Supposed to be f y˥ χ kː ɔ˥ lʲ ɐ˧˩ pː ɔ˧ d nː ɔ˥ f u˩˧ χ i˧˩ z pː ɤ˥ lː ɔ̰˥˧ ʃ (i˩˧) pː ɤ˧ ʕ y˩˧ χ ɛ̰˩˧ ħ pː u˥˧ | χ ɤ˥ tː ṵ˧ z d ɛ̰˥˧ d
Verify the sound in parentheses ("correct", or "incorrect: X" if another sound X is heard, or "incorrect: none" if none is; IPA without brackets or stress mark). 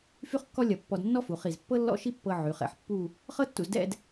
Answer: incorrect: i˥